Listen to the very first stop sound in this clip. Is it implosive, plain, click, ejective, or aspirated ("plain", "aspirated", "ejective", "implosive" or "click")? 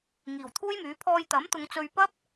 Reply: aspirated